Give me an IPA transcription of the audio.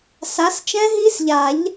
s a˨˦ s t͡ʃ ɛ̃˦˥ ɦ i˦˥ s ʎ a˨˩˦ ʎ

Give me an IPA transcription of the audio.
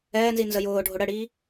ɛː n z i n z ə j ʊː ɖʱ ʊ ɽ ə ɽ iː

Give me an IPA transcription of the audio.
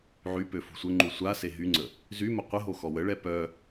ʕ y p ø f ṳ sʷ ə ŋ͡ǃ u sʷ a s e ɦ y ŋ͡ǀ ə | z y m ə qʷ ə ɦ o x ɔ w ə ɭ ɛ p œ

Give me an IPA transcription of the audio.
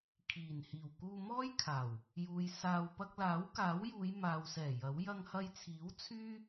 kʰ iː˨˩ n h iː˨˩ w k uː˧ m ɔː˥ j kʰ aː˨˩ w | j uː˨ j s aː˧ w p ɐ˧ k̚ l aː˨˥ w k aː˨˥ w j uː˨˧ j m aː˨ w s ɛː˨˩ j ɐ˨˥ w j ɐ˧ ŋ h ɐ˧ j t͡sʰ iː˨˥ w t͡sʰ yː˥

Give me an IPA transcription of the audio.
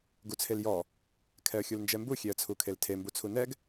ɡ u t͡sʰ e l j ɔ | kʰ ɛ ə̯ xʲ u l n d͡ʒ ɛ m b u xʲ e ə̯ t͡sʰ u kʰ e l tʰ e m b u t͡sʰ u n ɛ ɡ

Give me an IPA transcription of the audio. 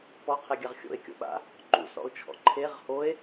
p ɔ qʰ e ɡʲ a ʁ xʲ o̰ e̯ kʲ o̰ ɓ a̰ | ǃ ṵ s ɔ̰ o̯ t͡ʃʰ ɔ̰ ǃʰ e ʁ h o e̯

